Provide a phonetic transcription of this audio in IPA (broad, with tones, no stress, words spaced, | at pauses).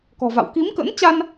kɔ̤˨˩va̰˧˨w ki˨˦mkə̰˧˥nt͡ɕa˧n